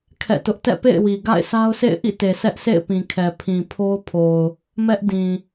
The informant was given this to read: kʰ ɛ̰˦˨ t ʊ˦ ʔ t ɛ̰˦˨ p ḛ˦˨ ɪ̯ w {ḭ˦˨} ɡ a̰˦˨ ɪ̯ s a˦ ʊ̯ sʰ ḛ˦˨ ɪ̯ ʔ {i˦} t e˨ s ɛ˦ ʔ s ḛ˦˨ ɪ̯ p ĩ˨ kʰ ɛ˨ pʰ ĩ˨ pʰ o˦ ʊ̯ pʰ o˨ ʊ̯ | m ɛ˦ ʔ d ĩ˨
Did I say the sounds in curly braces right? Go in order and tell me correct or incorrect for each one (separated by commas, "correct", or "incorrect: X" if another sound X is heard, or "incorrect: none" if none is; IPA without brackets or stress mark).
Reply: incorrect: i˨, incorrect: ḭ˦˨